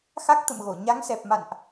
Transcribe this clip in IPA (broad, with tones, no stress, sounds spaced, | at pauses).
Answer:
x a˦˥ k̚ t̪ ə̰˧˨ m ɣ o˧˩ ɲ a˨˦ ŋ s ɛ˨˩ p̚ m a̰˧˨ n ʔ